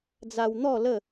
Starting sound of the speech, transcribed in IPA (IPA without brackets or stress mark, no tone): d͡z